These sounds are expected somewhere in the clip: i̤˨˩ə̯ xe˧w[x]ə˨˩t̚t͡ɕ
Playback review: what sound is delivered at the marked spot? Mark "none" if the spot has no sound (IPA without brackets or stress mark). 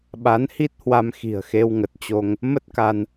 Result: ŋ